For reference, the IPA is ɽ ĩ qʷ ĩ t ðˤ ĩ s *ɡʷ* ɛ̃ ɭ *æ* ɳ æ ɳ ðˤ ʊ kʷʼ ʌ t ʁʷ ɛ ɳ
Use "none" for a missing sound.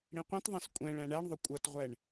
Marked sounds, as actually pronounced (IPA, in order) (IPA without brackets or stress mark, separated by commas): kʷʼ, æ̃